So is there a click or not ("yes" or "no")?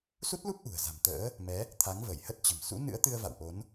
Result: no